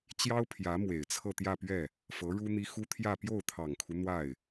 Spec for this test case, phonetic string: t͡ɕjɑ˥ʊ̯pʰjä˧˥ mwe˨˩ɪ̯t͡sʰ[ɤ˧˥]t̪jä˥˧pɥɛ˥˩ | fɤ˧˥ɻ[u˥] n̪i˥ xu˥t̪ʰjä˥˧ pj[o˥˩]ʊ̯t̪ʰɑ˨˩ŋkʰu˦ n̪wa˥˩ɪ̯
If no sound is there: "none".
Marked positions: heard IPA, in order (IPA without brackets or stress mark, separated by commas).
ɤ˥˧, u˥, o˥˩